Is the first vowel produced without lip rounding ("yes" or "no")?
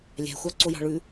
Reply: yes